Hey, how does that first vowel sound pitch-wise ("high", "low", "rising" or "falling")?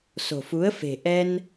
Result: low